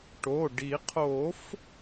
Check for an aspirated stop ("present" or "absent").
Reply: present